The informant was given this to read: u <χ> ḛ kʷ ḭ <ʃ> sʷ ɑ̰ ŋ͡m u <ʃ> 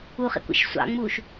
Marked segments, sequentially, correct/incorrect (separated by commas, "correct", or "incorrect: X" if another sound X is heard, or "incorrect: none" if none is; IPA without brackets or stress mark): correct, correct, correct